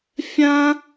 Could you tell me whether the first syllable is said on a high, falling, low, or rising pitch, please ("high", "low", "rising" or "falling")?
high